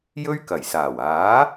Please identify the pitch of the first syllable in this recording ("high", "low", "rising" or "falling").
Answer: high